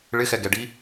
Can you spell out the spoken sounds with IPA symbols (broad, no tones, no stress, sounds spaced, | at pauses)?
ɭ ɪ x ɛ ɡ ɛ ɖ i